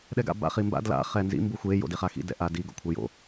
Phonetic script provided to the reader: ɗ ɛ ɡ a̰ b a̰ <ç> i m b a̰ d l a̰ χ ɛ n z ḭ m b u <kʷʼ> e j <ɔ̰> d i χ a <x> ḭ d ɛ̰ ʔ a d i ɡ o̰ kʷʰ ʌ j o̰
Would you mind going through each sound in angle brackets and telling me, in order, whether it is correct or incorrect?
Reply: incorrect: χ, incorrect: xʷ, incorrect: o̰, correct

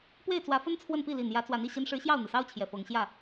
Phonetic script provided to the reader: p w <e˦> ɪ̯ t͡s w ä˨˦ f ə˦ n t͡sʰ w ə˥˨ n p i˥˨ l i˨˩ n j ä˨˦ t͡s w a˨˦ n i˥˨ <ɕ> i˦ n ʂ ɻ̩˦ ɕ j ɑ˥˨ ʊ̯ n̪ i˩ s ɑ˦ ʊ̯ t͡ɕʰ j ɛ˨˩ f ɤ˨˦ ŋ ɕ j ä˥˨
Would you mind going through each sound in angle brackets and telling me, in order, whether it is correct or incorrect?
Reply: incorrect: e˥˨, correct

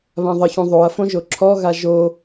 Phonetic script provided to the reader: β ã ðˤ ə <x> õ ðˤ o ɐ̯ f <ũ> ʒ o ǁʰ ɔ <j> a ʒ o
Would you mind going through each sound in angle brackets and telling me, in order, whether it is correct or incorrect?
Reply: incorrect: ç, incorrect: õ, incorrect: ɣ

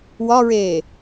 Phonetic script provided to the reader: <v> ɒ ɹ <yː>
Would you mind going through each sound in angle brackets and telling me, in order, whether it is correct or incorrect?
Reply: incorrect: w, incorrect: eː

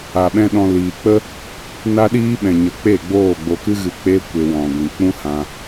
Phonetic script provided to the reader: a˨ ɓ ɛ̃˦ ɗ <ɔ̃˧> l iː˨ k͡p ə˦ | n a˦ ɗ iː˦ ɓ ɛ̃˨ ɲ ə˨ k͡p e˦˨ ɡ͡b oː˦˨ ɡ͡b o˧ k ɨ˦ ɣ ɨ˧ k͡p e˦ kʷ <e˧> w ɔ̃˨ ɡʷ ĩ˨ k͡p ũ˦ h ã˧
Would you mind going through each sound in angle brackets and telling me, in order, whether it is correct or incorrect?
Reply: correct, correct

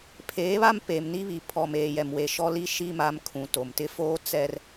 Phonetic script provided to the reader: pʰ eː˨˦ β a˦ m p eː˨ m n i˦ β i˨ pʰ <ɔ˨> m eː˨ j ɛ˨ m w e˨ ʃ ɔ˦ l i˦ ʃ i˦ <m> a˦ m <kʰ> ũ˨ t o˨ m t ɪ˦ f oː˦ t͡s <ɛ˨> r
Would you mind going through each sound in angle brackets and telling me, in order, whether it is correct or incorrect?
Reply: correct, correct, correct, incorrect: ɛ˦

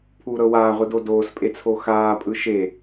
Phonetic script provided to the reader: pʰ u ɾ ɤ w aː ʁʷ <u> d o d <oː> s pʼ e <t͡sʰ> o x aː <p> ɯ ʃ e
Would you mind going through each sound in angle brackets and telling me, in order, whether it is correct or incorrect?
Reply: incorrect: ɯ, correct, correct, incorrect: pʼ

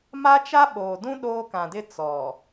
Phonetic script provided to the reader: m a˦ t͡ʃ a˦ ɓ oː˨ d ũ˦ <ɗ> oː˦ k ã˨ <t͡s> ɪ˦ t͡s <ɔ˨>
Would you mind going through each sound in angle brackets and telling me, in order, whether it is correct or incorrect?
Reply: correct, incorrect: d, correct

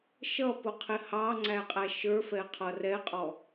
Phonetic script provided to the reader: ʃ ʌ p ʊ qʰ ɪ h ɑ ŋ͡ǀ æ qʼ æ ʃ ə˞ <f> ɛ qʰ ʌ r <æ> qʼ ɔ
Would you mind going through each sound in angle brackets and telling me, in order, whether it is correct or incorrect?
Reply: correct, incorrect: ɛ

